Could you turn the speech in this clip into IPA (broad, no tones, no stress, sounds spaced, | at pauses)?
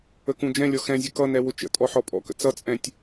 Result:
ə k ũ d͡ʒ ɛ̃ lʲ ɔ x ɛ̃ zʲ ə k ʌ n ɛ w ʊ t͡ʃ ə̰ tʼ ɔ ħ ɔ pʼ ɔ̰ k ə̰ t͡s ʌ t͡sʼ ɛ̃ tʲ